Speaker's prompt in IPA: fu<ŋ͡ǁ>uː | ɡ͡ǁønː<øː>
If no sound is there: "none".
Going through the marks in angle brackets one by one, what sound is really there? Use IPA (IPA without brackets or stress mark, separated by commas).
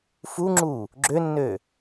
ŋ͡ǁ, øː